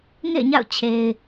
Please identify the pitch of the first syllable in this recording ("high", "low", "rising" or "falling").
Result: falling